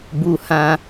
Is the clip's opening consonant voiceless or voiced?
voiced